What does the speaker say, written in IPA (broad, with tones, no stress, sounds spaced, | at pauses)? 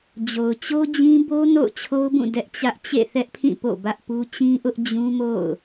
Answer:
d͡ʑ o˨ ʊ̯ t͡ɕ o˦ d͡ʑ ĩ˦ b o˦ n o̰˦˨ ʊ̯ t͡ɕʰ o˦ ʊ̯ b ũ˦˨ d ɛ˦ ʔ t͡ɕ ä˦ ʔ t͡ɕ ḛ˦˨ θ ɛ˦ ʔ pʰ ĩ˦˨ p o̰˦˨ b ä˦ ʔ p u˦ t͡ɕ ĩ˦ ʔ ʊ˦ ʔ d͡ʑ ũ˦ m o̰˦˨ ʊ̯